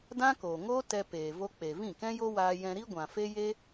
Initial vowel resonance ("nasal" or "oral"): nasal